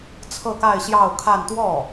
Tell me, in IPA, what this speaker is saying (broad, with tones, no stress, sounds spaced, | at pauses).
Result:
t͡sʰ ɤ˥˧ k a˥˧ ɪ̯ ɕ j ɑ˥˧ ʊ̯ kʰ a˥˧ n t̪ w ɔ˥˩